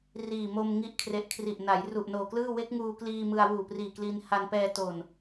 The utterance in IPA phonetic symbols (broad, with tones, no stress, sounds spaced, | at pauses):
r iː˨˩ m o˧ m ŋ i˦˥ ʔ kʰ r e˨˩ ʔ kʰ r i˨˩ ʔ n a˩˦ j r u˨˩ ʔ n oː˨˩ k l ɯː˥˩ w e˦˥ k̚ ŋ uː˧ k l iː˧ m ɯ˧ a̯ w uː˨˩ p r iː˨˩ k l iː˧ n h a˧ n p ɛː˧ t oː˨˩ n